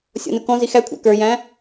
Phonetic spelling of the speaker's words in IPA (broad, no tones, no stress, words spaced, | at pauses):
sʲɔ̰nukɔ̃zi xækʷʰæ̰ kə˞jæ̃